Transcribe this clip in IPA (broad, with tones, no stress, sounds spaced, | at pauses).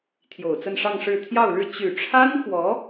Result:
t̪ʰ j o˨˩ ʊ̯ t͡s ə˥˧ n ʂ ɑ˥˧ ŋ ʂ ɻ̩˥˧ t̪ʰ j ɑ˥˧ ʊ̯ ɻ ɻ̩˥˩ t͡ɕ y˨˩ ʈ͡ʂʰ a˥ n x w ɔ˧˥